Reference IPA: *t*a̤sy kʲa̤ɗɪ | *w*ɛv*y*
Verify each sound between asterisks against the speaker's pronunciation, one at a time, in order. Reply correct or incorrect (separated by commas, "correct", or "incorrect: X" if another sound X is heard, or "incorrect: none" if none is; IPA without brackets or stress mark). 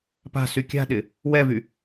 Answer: incorrect: p, correct, correct